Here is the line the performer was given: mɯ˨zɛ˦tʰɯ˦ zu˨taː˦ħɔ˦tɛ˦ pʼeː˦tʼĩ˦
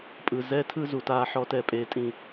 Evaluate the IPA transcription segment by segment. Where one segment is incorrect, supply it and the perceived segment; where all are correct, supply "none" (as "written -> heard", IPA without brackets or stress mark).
m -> pʼ